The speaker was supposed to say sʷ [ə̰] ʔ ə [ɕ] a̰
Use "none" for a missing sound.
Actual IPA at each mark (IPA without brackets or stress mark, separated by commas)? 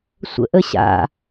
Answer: ə̰, ɕ